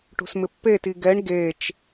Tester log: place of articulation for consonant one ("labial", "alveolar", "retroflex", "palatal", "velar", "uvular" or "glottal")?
retroflex